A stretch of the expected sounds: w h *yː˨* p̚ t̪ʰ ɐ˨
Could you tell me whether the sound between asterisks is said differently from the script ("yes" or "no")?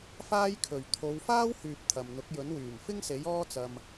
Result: no